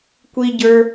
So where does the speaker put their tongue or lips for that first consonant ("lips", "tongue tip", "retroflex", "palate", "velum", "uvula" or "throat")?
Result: velum